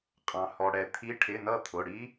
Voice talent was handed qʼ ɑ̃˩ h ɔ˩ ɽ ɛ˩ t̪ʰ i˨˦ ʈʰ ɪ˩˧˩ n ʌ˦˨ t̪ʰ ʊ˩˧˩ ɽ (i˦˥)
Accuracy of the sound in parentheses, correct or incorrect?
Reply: correct